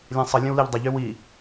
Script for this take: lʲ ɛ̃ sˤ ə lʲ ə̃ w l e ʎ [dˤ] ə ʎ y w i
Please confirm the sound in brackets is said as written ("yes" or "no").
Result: yes